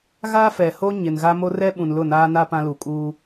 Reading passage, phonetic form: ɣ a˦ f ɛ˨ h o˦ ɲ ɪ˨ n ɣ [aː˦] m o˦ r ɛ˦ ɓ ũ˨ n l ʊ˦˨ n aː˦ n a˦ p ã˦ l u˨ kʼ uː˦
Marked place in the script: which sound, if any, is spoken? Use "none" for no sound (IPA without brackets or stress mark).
a˦